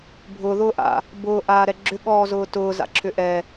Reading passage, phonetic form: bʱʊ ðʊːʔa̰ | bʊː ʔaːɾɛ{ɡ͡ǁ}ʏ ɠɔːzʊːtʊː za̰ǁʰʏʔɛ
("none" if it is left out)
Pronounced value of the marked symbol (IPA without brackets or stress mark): ɡ͡ǁ